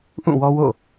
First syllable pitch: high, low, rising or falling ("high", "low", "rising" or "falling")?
falling